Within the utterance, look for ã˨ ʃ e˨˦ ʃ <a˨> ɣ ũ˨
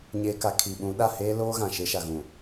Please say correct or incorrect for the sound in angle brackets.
correct